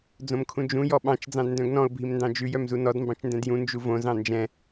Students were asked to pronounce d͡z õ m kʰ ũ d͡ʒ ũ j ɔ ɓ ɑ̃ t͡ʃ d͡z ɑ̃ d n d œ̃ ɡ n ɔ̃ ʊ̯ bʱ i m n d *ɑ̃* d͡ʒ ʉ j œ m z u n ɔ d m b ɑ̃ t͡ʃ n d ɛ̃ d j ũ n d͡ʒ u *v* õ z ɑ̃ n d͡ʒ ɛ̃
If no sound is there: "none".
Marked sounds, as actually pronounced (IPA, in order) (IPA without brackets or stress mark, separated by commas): ɑ̃, v